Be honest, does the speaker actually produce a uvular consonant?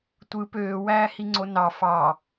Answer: no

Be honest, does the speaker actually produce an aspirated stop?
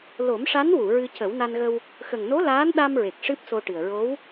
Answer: no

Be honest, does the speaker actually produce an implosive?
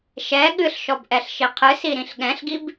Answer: yes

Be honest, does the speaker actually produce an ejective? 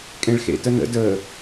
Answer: yes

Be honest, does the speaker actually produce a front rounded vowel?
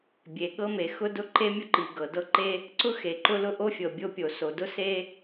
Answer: no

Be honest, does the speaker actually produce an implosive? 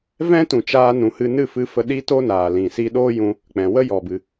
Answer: yes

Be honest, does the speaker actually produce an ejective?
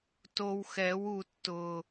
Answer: no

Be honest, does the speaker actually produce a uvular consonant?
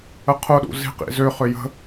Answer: yes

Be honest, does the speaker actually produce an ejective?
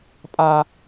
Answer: yes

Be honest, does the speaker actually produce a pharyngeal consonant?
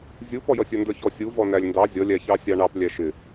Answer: no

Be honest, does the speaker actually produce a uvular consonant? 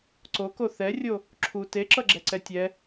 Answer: no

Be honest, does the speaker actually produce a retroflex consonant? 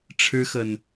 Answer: yes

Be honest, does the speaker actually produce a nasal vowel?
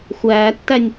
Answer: no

